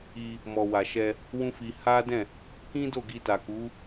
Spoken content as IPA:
i˧ | mɔ˨wa˨ʃɛ˧ | wũ˦fi˧ ha˦ dɛ̃˦˨ | kĩ˦do˦˨ ɡi˧ta˨ku˨˦

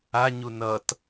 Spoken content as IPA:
a ɲunʌt

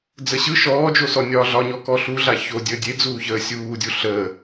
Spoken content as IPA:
d͡zəɕɯ ʃɔːd͡ʒosɔ nʲɒːɮɒɲɔ kɔɬuɮa ço dʲəːdʲed͡zuːçəː sʲuːdʲu ɬəː

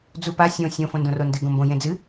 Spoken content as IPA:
d͡zupa sʲõ sʲõ fõndõrondɨ ɡõmbõ jẽd͡zɨ

